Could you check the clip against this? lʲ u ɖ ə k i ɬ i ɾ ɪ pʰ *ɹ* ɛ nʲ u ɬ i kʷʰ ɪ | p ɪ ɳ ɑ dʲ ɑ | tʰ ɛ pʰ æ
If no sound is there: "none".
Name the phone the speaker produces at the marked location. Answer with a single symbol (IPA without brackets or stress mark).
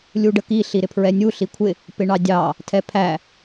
ɹ